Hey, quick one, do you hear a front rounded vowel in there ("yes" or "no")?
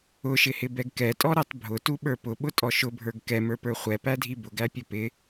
no